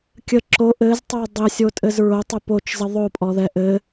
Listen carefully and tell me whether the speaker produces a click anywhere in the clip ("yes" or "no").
yes